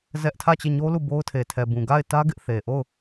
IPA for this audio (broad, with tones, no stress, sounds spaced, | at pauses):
z ɛ˦ ʔ tʰ ä˦˨ t͡ɕ e˦˨ ɲ o˦ l u˦˨ b o˦ ʊ̯ tʰ e˨ tʰ ɛ˨ b ũ˨ ɡ a˦˨ ɪ̯ t ä˦ ɡ ɪ˦ ʔ θ e˨ ʔ o˦˨ ʊ̯